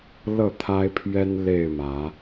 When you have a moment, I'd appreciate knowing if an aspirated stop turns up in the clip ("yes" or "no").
yes